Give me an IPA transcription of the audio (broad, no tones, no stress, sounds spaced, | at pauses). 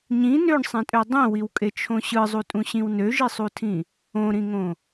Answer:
ɲ ĩ n ø ɳ sˤ ẽ tʼ ø dˤ ĩ w i w kʼ e t͡ʃʰ õ ɕ ɯ zˤ u tʼ ũ ɕ ĩ w n ø ʒ i sˤ u tʰ ĩ | õ ɾ ĩ ŋ õ